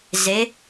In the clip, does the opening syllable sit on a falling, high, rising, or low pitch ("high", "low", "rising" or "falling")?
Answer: rising